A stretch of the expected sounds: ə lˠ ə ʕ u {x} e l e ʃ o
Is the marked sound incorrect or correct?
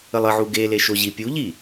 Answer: incorrect